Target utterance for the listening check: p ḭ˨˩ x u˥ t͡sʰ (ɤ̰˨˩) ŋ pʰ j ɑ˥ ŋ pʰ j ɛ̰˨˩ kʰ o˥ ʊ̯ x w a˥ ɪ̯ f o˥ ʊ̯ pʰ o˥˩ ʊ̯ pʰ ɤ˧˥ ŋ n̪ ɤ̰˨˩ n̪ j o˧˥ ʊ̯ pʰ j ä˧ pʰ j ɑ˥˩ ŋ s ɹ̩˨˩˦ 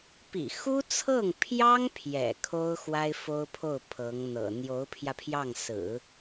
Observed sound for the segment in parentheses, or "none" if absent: ɤ˥˩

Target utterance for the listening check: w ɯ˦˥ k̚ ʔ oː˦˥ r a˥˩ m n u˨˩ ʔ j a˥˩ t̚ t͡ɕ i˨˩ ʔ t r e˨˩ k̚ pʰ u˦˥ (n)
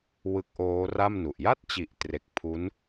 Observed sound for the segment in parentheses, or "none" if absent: n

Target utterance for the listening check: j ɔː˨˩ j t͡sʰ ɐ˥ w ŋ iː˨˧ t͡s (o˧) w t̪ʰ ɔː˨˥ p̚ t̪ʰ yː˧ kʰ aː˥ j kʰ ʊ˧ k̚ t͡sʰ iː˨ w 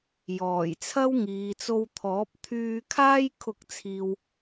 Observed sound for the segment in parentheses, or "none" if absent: o˧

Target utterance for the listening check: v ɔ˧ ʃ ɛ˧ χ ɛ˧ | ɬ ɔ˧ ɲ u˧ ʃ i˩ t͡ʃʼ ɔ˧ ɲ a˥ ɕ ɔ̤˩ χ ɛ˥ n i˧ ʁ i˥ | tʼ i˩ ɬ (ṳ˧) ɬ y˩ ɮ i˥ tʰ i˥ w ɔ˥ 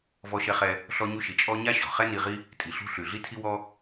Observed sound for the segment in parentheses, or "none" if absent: ṳ˧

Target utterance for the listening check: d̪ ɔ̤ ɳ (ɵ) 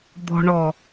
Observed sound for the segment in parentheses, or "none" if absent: ɔ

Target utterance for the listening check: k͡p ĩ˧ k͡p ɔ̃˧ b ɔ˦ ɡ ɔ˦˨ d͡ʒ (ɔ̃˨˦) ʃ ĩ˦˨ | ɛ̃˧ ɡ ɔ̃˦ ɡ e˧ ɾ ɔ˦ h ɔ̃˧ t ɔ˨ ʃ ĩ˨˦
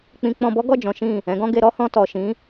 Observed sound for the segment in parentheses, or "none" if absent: ɔ̃˨˦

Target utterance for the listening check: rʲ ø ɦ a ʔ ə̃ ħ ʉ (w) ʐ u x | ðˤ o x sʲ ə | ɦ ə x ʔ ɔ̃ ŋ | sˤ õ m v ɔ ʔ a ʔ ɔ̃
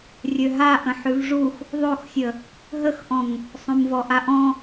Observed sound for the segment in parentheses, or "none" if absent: v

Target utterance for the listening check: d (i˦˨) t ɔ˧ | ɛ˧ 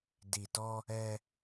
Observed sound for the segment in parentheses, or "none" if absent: i˨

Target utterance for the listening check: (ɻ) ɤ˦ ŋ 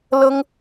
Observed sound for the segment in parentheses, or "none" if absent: l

